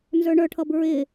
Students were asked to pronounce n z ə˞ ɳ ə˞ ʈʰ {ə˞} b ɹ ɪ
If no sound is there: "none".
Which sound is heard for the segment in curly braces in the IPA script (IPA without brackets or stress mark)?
ʌ